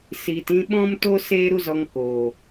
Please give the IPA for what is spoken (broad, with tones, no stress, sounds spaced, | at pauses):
s iː˨ t ĩ˧ ɓ ɔ̃˦ m t o˦ s eː˦ ɾ u˦ z ɔ˧ ŋ k oː˨